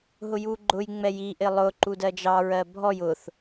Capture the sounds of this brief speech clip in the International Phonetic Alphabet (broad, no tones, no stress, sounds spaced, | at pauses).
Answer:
ɦ ʊ j u ɡ͡ǃ ʊ j ŋ͡m ɛ j i ʔ ɪ lˠ ʊ ǃ u d ɜ d͡ʒ ɑ ɹ ɜ bʱ ɔ j ʊ θ